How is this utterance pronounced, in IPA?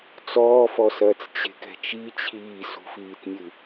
t͡s ɔː f ɔ s ɐː t͡s t͡ɕ e̤ k ɛ̤ t͡ʃ i t͡ɕʰ iː s ṳ f iː t nʲ ɨ

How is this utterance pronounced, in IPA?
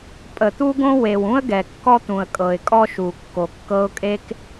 pʼ ə˩ t̪ u˥ ɡ õ˥ w e˩ w ũ˥ ə̯ ɡ ɛ˩ kː ɔ˥ t̪ ũ˩ ə̯ kʼ ɤ˩ ɪ̯ kʼ ɔ˥ ʃ u˩ kː o˩ kː ɤ˥ ʊ̯ kʼ e˥ k

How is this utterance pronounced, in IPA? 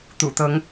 t̪ ṵ˨˩ t̪ ɤ˨˦ ŋ

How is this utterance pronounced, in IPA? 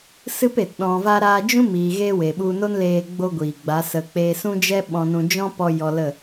s ɨ˦ p e˨ t ɗ ɔ̃˧ v a˦ ɾ aː˧ d͡ʒ ũ˦ m iː˨ ɣ e˦ w e˨ ɓ u˧ n o˦ n l eː˧ ɡ͡b o˦ ɡʷ iː˨ ɡ͡b a˨˦ s ə˧ k͡p eː˧ s ũ˦ d͡ʒ ɛ˦ ɓ ɔ̃˦ n ũ˦ d͡ʒ ɔ̃˦ p ɔ˧ j ɔ˧ l ə˦˨

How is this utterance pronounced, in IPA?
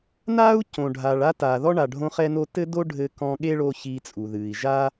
n aː˥ u̯ c õ˩ ɖʱ a˩ ɭ a˥ t aː˩ ð ɔ˥ ɳ a˩ ɖʱ õ˧ χ ɛ˧ n o˧ t ɘ˥ d o˥ ɖʱ ɘ˧ k ɔ̃˧ ɠ e˥ ɭ o˧ ç iː˧ t͡sʼ u˩ ð ɨː˩ i̯ ʒ a˥

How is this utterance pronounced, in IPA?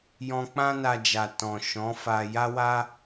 j ɔ̃˧ k͡p ã˦ n a˧ d͡ʒ a˨ t ɔ̃˨ ʃ ɔ̃˨˦ f a˧ j a˦ w a˦

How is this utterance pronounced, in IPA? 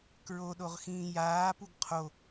k ɹ o ɗ o ʁ x ĩː j aː p u ɡ qʰ o

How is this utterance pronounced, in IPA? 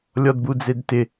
lʲ ɔ d b u d͡z e d t ɪ

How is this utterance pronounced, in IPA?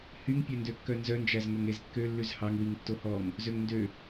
h y ŋ pʲ œ n d ø kː œ n z œ n d͡ʒ æ z ŋ ɵ ŋ e z kː ø lː ʉ z h ɑ ŋ w i ŋ tː o h ɔ ŋ | z ø ŋ n d ø

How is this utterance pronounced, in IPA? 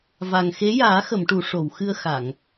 v a˨˩ ŋ x e˧˥ j aː˨˩˦ x ə˨˩˨ m ʈ u˨˩˨ ʂ o˨˩˨ w x ɨ˧ ə̯ x a˨˩˨ ŋ

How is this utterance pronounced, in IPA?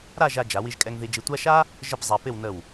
ɾ a˥˧ ʒ a˧ d͡ʒ a˩˧ w i˧ ʒ kʼ ɛ˧ ŋ ð i˧ d͡ʒ i˧ tʷ a˥ ʃ a˥ | ʒ ə˥˧ p zˤ a˧ p ɪ˥˧ w n ə˧˩ w

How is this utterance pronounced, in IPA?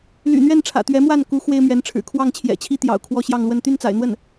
l y̰˨˩ n̪ ɥ ɛ˥˩ n ʈ͡ʂʰ ä̰˨˩ t̪ ɥ ɛ˧˥ m w a˥˩ n k u˧˥ x w e˥ ɪ̯ m ɥ ɛ˧˥ n ʈ͡ʂʰ ɻ̩˨˩ kʰ w ɑ˥˩ ŋ t͡ɕʰ j ɛ̰˨˩ t͡ɕʰ i˥ t̪ j ɑ̰˨˩ ʊ̯ kʰ w ɔ˥˧ ɕ j ɑ˥˧ ŋ l w ə˥˧ n t̪ y˥˩ n t͡s a̰˨˩ ɪ̯ n̪ w ə˥˩ n

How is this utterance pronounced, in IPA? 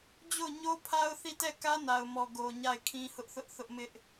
d͡ʑ o˦˨ ʊ̯ ɲ o˦ pʰ a˦ ʊ̯ θ i˦˨ t ɛ˦˨ k ä˦ n a˨ ʊ̯ m ɔ˨ ɡ o˨ ɲ a˦˨ ɪ̯ kʰ ĩ˦ h ʊ˦ ʔ θ ʊ˦ ʔ θ ʊ˦ ʔ m ɪ˦ ʔ

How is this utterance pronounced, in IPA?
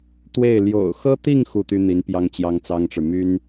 t̪ w e˥˩ ɪ̯ l j o̰˨˩ ʊ̯ x ɤ˥ t̪ i˥˧ ŋ x u˥˩ t̪ y˥ n̪ i˧˥ n p j ɑ˥ ŋ t͡ɕ j ɑ˥ ŋ t͡s ɑ˥ ŋ ʈ͡ʂ ɻ̩˨ m y˥ n

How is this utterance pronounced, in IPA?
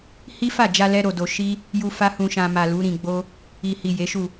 h i˦ f a˦˨ d͡ʒ a˧ l ɛ˦ ɾ o˧ d o˧ ʃ i˦ | j u˧ f a˦ h ũ˧ ʃ ã˧ m a˨ l u˨˦ ɾ ĩ˧ ɡ͡b o˦ | i˨ h i˨ j e˨˦ ʃ u˦˨

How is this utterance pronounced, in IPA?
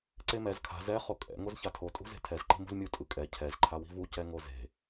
ǀ e m ɛ z kʰ a̤ z ɛ χ o kʼ ɛ̰ ŋ o z ç a tʰ o tʼ ṳ z e̤ tʰ ɛ z ǃ i̤ m ṳ z mʲ u tʼ ɯ kʼ ɛ cʰ ɛ z ǃʰ a w i̤ v u c ɛ ŋ o z e̤

